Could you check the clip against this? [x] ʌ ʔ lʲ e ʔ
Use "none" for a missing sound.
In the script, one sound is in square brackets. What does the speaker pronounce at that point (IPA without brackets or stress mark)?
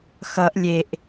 x